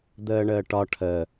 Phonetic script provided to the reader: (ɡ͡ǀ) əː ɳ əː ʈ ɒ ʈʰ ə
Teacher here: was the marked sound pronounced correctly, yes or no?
no